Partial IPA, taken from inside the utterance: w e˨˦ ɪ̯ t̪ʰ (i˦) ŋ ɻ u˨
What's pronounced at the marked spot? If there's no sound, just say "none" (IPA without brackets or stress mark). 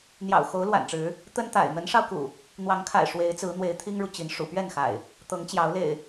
i˦